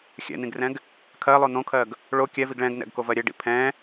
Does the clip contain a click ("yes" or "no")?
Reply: no